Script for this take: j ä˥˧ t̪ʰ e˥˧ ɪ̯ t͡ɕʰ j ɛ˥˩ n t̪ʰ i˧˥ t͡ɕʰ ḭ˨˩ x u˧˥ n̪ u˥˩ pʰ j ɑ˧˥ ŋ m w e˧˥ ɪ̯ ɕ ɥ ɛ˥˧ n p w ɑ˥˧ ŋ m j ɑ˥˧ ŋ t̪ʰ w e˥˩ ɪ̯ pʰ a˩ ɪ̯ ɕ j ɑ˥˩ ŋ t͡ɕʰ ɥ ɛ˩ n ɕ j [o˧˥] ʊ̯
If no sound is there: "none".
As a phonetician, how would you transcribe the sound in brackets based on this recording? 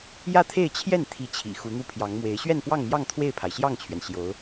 o˧˥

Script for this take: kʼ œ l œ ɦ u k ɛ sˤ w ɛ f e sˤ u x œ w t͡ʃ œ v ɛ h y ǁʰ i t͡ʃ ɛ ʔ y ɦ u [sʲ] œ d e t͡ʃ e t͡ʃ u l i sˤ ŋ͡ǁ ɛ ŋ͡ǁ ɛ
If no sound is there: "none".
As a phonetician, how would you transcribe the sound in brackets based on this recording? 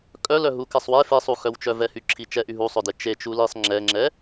sˤ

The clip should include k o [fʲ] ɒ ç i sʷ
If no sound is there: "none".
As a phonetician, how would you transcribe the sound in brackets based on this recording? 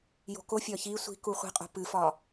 fʲ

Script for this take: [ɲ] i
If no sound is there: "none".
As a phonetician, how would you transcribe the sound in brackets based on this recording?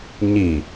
ɲ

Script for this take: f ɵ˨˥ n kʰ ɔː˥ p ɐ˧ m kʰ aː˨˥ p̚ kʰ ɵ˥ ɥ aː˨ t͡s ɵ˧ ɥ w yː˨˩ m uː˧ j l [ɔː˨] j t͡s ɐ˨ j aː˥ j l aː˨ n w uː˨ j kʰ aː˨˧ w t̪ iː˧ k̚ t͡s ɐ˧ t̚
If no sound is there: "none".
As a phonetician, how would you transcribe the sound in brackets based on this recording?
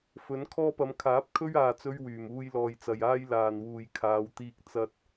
ɔː˨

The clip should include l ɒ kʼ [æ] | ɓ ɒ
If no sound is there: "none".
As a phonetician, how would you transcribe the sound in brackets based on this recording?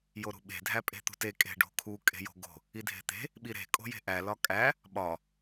æ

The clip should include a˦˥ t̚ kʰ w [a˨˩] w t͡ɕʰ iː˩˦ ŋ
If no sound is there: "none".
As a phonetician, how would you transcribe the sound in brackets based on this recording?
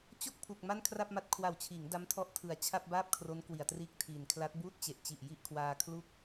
a˨˩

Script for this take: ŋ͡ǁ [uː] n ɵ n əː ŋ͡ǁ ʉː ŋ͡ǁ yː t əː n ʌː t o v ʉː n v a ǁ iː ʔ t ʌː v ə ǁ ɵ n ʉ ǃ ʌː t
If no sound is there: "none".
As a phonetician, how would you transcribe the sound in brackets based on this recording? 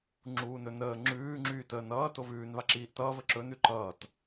uː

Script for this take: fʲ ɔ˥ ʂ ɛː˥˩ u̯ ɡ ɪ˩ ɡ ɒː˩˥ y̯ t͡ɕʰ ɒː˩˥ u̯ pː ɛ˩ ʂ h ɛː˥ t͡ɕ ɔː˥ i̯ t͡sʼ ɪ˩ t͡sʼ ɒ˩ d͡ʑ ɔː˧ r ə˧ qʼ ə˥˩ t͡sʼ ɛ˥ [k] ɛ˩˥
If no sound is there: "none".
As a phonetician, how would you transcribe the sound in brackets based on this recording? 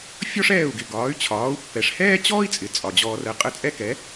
k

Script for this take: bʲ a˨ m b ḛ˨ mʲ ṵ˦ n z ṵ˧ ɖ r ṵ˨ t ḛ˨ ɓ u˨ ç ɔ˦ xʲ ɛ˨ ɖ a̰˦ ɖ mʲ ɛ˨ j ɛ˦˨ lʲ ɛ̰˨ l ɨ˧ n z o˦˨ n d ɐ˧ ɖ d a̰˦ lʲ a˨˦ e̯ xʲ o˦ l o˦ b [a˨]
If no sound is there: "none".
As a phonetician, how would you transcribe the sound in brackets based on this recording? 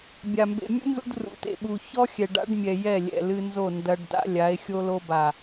a˨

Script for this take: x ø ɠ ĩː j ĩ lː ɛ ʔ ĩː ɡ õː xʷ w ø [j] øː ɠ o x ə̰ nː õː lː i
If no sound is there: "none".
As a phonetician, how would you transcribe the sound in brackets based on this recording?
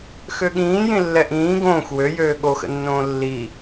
j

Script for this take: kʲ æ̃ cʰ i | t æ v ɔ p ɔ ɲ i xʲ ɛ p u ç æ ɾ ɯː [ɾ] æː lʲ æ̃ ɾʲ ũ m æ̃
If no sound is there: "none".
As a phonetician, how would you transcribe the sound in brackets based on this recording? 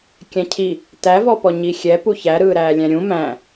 ɾ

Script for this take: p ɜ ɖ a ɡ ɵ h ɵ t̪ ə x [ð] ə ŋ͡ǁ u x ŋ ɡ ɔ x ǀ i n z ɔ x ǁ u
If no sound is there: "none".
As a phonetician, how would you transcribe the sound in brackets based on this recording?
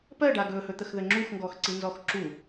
ð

